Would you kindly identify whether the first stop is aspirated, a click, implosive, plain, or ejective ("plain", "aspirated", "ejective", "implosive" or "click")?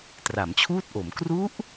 plain